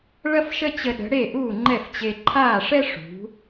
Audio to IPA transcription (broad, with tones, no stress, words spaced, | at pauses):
ɭɐ˥fʃə˥t͡ɕə˧ɗə̤˩˥ ɽe˥˩ʔuː˥˩ŋ͡ǃɛ˥˩ft͡ɕe˧ ǃʰaː˥˩ʂɛ˥ ʂṳ˩˥